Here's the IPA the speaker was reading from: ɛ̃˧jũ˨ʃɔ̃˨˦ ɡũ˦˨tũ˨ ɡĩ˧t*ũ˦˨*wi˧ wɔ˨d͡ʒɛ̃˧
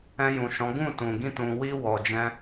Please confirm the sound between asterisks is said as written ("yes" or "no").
no